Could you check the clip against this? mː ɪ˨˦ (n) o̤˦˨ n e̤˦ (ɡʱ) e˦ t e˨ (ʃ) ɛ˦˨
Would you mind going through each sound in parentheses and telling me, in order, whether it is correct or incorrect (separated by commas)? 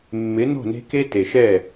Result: correct, incorrect, correct